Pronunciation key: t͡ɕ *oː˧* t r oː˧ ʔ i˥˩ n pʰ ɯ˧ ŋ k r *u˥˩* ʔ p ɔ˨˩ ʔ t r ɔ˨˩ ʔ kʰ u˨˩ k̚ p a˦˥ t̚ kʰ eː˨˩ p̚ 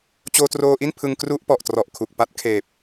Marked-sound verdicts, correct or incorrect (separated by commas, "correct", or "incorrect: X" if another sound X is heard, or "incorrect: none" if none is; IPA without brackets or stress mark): correct, correct